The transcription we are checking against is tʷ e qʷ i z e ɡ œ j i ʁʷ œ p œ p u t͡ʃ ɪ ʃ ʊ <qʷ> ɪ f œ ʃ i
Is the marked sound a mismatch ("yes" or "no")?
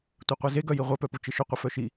no